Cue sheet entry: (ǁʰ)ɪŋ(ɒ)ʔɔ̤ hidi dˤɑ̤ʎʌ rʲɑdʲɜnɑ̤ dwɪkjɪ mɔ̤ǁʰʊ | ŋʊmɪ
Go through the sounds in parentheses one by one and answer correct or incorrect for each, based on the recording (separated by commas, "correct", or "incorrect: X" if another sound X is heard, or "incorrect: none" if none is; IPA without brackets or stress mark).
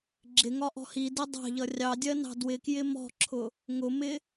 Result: incorrect: ɡ͡ǁ, correct